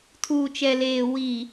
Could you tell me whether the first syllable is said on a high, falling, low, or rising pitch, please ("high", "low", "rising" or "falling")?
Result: low